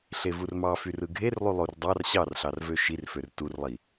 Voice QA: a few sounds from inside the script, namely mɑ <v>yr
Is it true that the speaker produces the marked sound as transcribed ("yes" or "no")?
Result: no